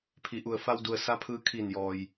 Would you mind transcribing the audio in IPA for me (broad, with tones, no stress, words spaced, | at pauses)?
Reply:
pʰi˩˧ʔu˩ə̯fa˧wdu˩ə̯ sa˧˥pʰɯː˧ kʰi˧˩njɔː˩j